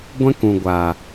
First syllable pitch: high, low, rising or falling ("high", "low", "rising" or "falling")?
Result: high